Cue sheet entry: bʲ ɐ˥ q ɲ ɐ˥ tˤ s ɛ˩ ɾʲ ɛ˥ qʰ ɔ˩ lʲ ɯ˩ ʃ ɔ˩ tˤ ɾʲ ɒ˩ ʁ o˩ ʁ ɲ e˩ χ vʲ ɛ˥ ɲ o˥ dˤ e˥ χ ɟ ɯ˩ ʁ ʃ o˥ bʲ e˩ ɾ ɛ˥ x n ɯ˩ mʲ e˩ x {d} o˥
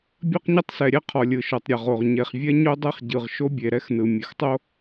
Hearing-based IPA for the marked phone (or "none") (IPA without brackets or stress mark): tˤ